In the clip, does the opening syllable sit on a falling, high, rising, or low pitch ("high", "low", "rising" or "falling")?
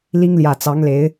high